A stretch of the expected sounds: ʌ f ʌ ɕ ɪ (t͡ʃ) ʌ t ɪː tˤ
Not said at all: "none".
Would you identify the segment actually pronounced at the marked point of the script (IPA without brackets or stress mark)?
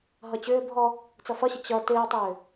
t͡ɕ